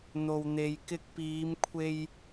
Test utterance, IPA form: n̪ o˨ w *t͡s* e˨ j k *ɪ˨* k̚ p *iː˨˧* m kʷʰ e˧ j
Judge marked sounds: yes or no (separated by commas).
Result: no, no, yes